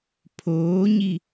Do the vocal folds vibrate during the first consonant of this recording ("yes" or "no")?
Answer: no